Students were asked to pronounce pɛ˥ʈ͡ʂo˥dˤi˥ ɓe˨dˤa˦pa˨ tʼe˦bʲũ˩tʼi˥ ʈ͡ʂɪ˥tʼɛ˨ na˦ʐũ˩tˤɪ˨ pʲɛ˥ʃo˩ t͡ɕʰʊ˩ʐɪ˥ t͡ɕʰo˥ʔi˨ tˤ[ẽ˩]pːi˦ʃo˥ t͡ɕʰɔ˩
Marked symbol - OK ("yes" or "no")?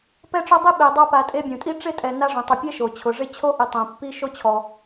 yes